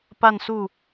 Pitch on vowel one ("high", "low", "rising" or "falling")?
falling